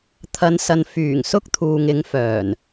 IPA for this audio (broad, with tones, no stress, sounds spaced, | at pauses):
t̪ʰ ɐ˨˧ n s ɐ˨ n f yː˨˩ ŋ s ʊ˥ k̚ t̪ʰ uː˨ ŋ ɪ˨˧ ŋ f œː˨˩ n